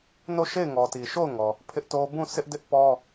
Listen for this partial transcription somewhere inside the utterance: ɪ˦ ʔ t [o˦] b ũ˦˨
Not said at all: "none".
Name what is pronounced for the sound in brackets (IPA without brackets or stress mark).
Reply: o˦